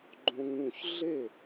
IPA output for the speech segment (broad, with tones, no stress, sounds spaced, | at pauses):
ɡ͡ǃ õ˧ ŋ ũ˥˩ ç ɮ e˥˩